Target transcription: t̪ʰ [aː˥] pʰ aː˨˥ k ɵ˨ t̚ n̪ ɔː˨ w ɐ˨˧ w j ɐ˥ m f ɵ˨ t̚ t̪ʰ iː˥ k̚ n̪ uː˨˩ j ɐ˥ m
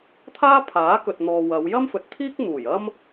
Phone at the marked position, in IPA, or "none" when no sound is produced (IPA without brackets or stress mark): aː˥